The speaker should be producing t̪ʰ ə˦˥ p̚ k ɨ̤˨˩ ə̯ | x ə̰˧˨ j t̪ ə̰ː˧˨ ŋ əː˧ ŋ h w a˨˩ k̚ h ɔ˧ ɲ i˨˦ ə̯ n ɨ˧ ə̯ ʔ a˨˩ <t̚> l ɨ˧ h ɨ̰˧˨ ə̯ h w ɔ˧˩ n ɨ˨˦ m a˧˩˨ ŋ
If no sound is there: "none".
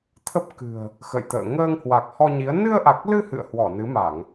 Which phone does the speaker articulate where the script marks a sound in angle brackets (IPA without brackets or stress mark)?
k̚